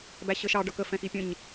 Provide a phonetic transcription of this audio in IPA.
bæɕəʃɑ ɖʌkə fɛ̃xipʲə̃ɲ

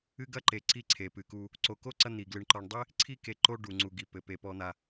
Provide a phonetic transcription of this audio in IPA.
ɨ˥ɡɐ˥ǃe˨ ǀi˦ ǀʰe˩pɨ˩ku˨ | ǀo˨ko˥ ǀɐ˥n̪i˩ɡlɨ˨ɳ ǃɔ˨ɳdˤe˥ | ǀʰi˥ke˨ ǃo˥ɖu˩ŋ͡ǀu˩ɡi˩ pɘ˩ pe˩pɔ˨n̪a˩

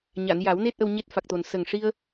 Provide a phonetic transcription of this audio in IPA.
ɲa˨˩˨nja˨˩˦wne˦˥t̚ ʔə˧wɲe˦˥t̚fa˨˩k̚t̪o˨˩n sə˨˩ŋʂi˧ə̯

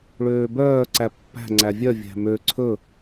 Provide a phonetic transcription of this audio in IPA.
ɭøːbœː ǀæpːæ̤ ŋ͡ǀævʲœ vʲæ̤mø ǀʰɵ

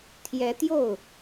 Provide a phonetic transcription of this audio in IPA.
t̪ʰjɛ˧˥t̪jo˥˩ʊ̯

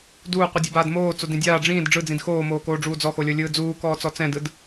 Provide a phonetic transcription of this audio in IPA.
duːqʷɯdʲobaːd moːt͡sodĩ dʲaː ɖ͡ʐĩːd ɖ͡ʐɯd͡zĩd xoːmoːkoːɖ͡ʐuː d͡zɔxolʲɤlʲɯː d͡zuːkɔːt͡sɔ t͡sɛ̃dɯd

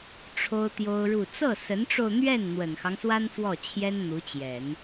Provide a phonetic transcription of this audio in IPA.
ʈ͡ʂʰo˥ʊ̯t̪jo˥ʊ̯ɻu˥˧ t͡sɤ˥˩sə˧˥nʈ͡ʂo˧ʊ̯n̪ɥɛ˥˩n n̪wə˨˩nxɑ˦ŋswa˥n fwɔ˥˩t͡ɕʰjɛ˥n n̪u˧˥t͡ɕjɛ˨˩˦n

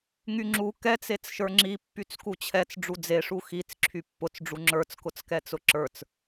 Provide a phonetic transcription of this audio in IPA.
ŋyŋ͡ǁu kɛt͡set͡sʃə˞ ŋ͡ǁipːyt͡s kut͡ɕʰɛt͡s ɖ͡ʐud͡zeʂu xit͡s ǁʰypːʊt͡sɖ͡ʐu ŋ͡ǁə˞t͡skʊt͡skɛt͡sʊ ǁə˞t͡s

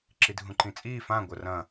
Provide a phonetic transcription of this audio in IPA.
ǁidʱũǃĩt͡sʼiː fã ɡʷɐrɐ̃

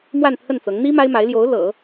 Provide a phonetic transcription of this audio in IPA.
mwa˥˧nt̪ʰə˥˩nt͡sɤ˧˥ŋ n̪i˥ ma˥ɪ̯ma˧˥ɪ̯ljo˧˥ʊ̯ lɤ̰˨˩˦

